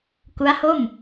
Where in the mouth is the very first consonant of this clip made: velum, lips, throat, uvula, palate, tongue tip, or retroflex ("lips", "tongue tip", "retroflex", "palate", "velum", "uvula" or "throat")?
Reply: velum